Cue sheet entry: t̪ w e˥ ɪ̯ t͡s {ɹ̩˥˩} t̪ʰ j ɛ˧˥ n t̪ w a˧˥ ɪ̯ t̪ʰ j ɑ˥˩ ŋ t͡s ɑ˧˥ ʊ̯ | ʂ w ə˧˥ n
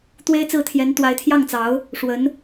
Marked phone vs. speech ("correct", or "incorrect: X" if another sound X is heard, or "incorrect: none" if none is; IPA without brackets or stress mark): correct